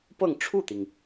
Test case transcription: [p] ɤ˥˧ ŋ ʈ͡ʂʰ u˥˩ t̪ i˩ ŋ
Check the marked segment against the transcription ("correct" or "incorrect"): correct